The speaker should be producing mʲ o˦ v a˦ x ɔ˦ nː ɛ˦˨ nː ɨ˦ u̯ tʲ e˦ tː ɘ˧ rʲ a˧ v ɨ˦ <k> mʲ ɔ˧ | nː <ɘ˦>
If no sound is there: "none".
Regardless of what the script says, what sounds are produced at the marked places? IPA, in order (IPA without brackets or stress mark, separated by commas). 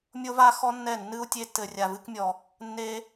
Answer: k, e˦